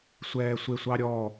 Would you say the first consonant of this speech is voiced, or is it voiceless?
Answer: voiceless